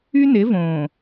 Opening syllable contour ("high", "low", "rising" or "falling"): high